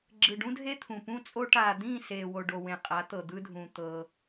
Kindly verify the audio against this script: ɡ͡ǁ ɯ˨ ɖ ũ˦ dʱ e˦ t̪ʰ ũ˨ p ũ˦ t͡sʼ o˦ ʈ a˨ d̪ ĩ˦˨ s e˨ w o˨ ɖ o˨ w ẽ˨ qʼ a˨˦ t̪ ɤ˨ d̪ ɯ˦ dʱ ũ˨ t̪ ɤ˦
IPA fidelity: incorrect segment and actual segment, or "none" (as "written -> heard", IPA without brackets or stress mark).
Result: none